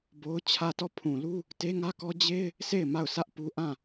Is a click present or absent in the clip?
absent